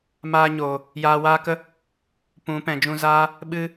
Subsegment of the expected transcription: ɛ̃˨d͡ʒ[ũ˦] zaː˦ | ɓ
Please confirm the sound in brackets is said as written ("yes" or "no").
no